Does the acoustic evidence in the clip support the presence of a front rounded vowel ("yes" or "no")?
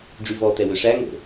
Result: yes